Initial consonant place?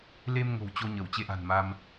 alveolar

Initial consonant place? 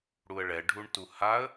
retroflex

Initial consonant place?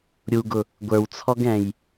alveolar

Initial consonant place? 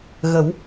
velar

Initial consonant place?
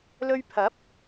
alveolar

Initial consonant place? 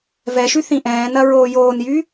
labial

